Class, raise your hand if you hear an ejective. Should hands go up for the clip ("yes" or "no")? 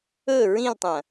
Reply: no